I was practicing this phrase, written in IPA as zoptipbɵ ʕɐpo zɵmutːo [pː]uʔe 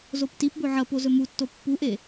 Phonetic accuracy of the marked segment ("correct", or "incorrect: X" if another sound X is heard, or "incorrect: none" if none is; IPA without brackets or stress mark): correct